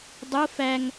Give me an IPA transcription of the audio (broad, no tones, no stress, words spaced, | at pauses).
dˤo fæŋ